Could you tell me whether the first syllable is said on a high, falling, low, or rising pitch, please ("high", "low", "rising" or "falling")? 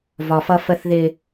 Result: low